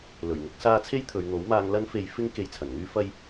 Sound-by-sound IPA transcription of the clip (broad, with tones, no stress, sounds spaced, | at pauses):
l ɵ˨˩ ɥ ŋ ʊ˨˥ k̚ s aː˧ t͡sʰ e˥ j t̪ʰ ɵ˨ ɥ n̪ o˨˥ w m aː˧ ŋ l ɐ˥ n f e˧ j f ɪ˥ ŋ k e˧ j t͡sʰ ɐ˨˩ n ŋ yː˥ f ɐ˥ j